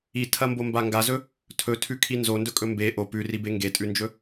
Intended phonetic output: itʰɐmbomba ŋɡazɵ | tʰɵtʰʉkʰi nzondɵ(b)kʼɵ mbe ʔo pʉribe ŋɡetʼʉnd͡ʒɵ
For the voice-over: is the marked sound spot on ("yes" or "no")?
no